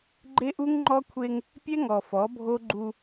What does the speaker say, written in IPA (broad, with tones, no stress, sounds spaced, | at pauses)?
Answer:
ɡ͡ǃ e˦ ʔ u˦ ŋ ŋ͡ǃ ɔ˦ kʷʰ e˦ ŋ | pʲ ɛ˦ ŋ ɔ˨ f ɔ˨˦ bʱ o˦ ɡ͡ǃ u˦